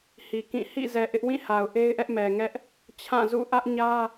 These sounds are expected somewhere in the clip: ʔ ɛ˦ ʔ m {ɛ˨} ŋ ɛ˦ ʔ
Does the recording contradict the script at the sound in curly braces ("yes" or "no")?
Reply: no